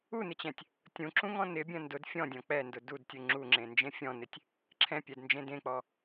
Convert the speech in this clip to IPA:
unɪt͡ɕɛ̃tʲ | tʲũǁũŋɔ̃ nɪbʲɐ̃ ndʊd fʲɔ̃dʲɔ̃ k͡pɛndʊ dudtʲu ŋ͡ǁuŋ͡ǁẽnd͡ʒẽ fʲɔ̃nɪtʲ | ǁʰɛ̃pʲɛdnd͡ʒẽ dẽk͡pɔ

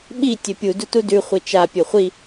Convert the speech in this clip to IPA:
ɓi tʲɵpʲu dutudʉ χʷit͡ʃa pʲɵχʷi

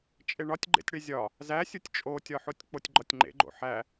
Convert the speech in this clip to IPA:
t͡ʃʼeɳɒtʲɡ͡ǃḛtʲɽe zʲɒ | zæsʲutʲ t͡ʃʼotʲɒħotʲ k͡potʲɡ͡ǃɒtʲŋ͡ǃḛɡ͡ǃo̰ ħæ

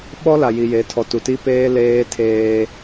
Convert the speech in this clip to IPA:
ɓɔ˦la˨ ji˨je˨˦ tʰɔ˨tu˨ti˦ peː˦ leː˦tʰeː˦

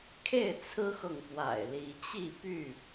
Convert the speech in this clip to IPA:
kʰe˥˨ɪ̯t͡sʰɹ̩˦xɤ˨ŋ pwa̰˨˩ɪ̯li˨˦ t͡ɕi˥˨py˥˨

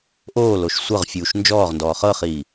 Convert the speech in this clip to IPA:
ʔoːloʃ sʷɤʁfʲuːʃ nd͡ʒɔːʁndɔː χɤχiː

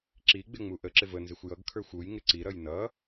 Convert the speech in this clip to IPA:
ǁiɡ͡bɪŋ͡mu ʔəǁɪv ənzɪxʷ jʌɡkʰə˞xʷ ujŋɪ ǀiɾʌj nʌ

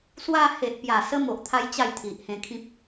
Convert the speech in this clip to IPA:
swa˧he˨ʔpja˨˩sə˧ mo˨ʔt̪ʰa˦j t͡ɕa˥˧jt̪ʰi˨ʔhẽ˧kʰĩ˦p̚

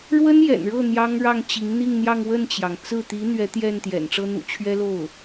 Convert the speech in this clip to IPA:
ɻwə˥njɛ̰˨˩nɻɤ˥˩ n̪jɑ˥ŋɻɑ˥˩ŋ t͡ɕi˧˥ŋn̪i˥˧ŋn̪jɑ˥˧ŋ wə˥˩nt͡ɕjɑ˩ŋ t͡sɹ̩˥˩t̪i˧˥ n̪ɥɛ˧˥t̪jɛ˥˩nt̪jɛ̰˨˩n ʈ͡ʂɤ˥n̪ṵ˨˩ t͡ɕʰɥɛ˥lo˥˩ʊ̯

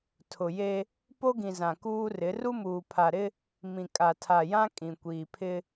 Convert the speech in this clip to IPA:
tʰʊ˨je˦ | po˦ɡĩ˨ zã˨kuː˦rɪ˨˦ ru˦muː˨pʰa˨ɾɪ˦ | mĩ˨kʼa˨tʰa˨jã˦ kʼĩ˨kʷiː˨pʰɪ˦

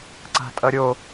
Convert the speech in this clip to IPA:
ǀa̤tʼʌɾʲo

